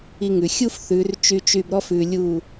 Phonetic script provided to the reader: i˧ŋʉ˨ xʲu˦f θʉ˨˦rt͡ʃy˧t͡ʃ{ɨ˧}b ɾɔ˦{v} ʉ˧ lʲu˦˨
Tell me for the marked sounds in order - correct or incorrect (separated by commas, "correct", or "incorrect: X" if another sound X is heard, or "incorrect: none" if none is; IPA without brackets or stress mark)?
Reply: incorrect: y˧, incorrect: f